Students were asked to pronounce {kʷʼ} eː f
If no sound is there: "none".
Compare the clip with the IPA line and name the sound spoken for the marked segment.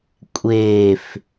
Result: kʷʼ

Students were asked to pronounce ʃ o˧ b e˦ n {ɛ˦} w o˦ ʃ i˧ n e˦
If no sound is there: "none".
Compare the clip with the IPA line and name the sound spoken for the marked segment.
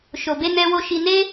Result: ɛ˦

